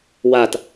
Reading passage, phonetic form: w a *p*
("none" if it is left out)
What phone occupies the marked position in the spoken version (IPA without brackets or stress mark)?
t